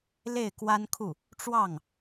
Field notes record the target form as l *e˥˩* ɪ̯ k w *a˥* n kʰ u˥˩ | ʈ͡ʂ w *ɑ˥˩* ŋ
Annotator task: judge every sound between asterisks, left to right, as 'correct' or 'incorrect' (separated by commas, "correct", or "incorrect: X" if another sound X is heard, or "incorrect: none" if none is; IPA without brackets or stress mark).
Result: correct, correct, correct